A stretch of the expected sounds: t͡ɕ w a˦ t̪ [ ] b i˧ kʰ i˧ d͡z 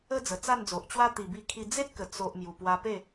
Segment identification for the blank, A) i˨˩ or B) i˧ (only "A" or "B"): A